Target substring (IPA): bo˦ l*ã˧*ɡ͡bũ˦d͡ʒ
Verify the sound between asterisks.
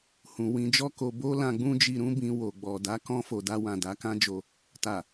correct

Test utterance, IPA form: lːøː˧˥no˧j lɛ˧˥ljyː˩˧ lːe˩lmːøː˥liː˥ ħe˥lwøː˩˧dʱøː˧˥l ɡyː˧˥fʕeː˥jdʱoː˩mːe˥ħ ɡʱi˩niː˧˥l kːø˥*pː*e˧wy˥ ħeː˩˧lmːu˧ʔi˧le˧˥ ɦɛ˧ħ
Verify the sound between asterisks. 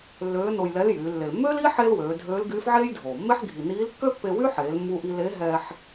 correct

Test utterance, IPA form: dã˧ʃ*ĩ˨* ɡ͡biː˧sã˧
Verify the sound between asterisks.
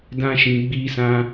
correct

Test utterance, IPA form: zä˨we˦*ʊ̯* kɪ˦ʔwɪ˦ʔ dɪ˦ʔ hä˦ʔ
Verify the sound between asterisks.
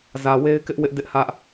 incorrect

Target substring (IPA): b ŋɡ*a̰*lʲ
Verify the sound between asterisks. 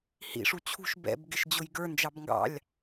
incorrect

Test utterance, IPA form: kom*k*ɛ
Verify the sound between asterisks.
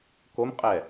incorrect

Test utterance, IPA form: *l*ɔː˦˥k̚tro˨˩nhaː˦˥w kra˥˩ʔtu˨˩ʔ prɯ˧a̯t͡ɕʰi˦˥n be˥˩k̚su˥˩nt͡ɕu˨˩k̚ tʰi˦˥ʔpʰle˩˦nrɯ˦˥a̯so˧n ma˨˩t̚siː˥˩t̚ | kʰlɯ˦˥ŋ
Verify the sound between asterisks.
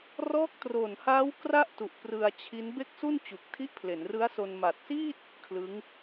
incorrect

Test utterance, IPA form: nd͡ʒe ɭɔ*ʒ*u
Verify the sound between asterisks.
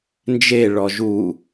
correct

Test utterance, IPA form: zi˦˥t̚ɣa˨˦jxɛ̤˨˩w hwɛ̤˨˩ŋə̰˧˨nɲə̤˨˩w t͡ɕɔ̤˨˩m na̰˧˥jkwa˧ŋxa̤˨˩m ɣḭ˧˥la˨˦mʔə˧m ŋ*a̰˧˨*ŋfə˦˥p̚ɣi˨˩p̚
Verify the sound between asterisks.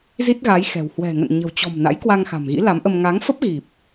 incorrect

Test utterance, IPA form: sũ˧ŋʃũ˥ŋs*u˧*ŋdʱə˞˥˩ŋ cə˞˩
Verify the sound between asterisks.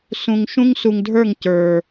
correct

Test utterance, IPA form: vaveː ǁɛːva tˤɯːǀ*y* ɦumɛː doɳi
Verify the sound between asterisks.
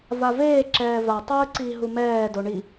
incorrect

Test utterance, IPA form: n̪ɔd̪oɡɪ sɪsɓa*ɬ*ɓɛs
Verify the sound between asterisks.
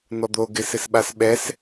incorrect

